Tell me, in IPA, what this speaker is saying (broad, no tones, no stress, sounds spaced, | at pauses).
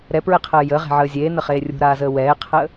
ɾ ɛ p ɹ ɛ qʰ əː j ə ʁ e̤ ʕ əː zʲ eː n ə χ eː rʲ ṳ ɾ aː z əː w ɛː qʰ əː